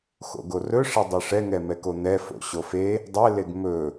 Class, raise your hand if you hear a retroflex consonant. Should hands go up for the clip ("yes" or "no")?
yes